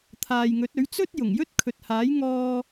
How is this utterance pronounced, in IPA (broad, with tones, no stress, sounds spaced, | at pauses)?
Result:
t̪ʰ aː˨ j ŋ ɵ˨˥ t̚ ɵ˨˥ ɥ t͡s ɵ˥ t̚ j ʊ˨˩ ŋ j ɵ˥ t̚ kʰ ɵ˨ t̚ h aː˨˥ j ŋ ɔː˧